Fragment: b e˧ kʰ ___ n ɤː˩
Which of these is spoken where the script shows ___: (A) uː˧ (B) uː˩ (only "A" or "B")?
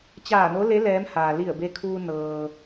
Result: A